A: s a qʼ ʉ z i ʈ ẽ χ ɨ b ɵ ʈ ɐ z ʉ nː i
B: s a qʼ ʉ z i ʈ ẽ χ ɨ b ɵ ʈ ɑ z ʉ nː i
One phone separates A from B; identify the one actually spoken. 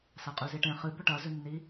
A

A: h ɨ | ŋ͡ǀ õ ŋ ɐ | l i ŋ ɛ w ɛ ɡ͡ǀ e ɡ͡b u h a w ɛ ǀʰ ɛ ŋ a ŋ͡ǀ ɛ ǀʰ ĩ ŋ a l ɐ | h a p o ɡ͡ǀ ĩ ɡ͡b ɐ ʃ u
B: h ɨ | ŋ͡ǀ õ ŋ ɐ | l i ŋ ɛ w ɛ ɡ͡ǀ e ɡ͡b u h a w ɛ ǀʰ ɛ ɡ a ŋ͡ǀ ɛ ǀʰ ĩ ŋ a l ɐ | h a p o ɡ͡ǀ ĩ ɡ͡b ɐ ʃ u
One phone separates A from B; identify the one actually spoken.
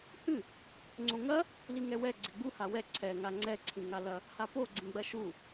A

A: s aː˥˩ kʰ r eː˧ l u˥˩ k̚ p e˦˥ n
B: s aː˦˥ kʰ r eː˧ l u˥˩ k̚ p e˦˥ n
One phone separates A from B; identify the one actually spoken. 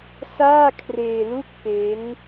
A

